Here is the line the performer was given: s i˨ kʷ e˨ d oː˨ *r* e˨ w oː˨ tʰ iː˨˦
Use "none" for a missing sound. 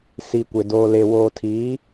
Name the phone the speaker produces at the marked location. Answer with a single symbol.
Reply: l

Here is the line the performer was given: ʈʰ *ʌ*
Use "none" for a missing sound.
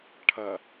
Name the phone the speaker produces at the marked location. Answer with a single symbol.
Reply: ʌ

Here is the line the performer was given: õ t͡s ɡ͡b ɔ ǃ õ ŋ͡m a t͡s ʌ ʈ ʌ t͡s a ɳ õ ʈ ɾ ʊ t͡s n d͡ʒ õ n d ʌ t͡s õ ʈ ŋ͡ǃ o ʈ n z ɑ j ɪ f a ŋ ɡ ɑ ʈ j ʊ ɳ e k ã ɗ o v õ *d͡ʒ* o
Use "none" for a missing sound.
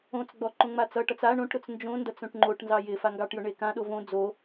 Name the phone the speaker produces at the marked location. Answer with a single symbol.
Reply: d͡z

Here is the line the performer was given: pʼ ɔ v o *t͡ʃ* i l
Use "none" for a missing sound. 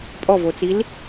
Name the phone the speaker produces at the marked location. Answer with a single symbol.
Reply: t͡s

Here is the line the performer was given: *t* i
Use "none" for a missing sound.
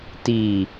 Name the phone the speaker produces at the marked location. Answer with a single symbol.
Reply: t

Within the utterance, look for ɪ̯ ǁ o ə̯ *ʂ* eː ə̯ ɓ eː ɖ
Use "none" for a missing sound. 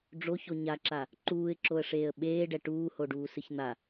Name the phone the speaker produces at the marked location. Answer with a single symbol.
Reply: ʂ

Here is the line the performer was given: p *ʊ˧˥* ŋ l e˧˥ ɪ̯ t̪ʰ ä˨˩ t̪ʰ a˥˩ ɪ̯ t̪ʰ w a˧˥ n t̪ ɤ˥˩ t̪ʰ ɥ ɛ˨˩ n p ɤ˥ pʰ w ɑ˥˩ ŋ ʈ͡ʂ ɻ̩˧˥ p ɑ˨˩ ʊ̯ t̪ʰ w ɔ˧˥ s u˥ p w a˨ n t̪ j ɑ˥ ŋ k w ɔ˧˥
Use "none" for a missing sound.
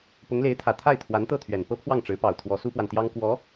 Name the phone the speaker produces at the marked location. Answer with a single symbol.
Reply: ʊ˧˥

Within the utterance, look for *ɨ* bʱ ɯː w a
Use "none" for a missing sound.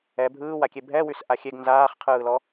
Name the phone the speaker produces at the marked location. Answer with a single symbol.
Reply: ɛ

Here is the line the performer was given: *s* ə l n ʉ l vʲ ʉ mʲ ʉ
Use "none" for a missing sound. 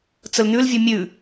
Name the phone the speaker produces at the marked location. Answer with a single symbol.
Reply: t͡s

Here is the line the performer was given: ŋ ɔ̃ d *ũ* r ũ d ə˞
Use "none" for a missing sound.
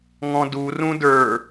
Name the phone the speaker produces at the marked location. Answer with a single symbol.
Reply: u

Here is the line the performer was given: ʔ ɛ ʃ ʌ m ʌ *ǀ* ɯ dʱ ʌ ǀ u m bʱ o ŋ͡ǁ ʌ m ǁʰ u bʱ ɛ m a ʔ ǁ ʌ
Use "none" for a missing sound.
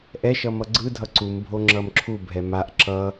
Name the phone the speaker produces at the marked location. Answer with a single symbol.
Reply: ɡ͡ǀ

